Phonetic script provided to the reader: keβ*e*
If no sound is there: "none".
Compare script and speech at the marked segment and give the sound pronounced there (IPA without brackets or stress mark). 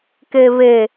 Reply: e